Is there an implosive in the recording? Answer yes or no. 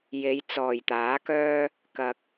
no